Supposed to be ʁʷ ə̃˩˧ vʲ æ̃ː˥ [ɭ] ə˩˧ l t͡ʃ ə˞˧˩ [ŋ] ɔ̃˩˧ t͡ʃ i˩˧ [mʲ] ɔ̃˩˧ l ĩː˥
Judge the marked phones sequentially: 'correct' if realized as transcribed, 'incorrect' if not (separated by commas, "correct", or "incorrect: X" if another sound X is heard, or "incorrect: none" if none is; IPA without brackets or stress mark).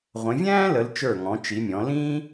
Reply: incorrect: l, correct, correct